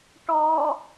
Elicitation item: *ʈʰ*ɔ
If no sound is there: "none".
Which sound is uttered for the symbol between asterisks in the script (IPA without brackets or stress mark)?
ʈ